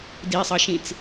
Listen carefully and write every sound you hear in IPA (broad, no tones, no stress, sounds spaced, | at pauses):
d i sˤ ʌ ʃ ĩ t͡s